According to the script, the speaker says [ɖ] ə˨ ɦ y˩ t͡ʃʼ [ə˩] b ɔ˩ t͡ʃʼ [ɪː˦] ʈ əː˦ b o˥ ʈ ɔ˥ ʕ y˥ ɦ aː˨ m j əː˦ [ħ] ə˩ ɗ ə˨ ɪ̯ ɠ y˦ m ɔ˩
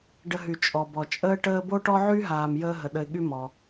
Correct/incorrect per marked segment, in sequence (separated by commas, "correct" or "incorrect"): correct, incorrect, incorrect, incorrect